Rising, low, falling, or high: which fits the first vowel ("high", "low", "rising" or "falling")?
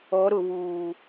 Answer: rising